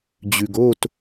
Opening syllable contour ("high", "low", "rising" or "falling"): low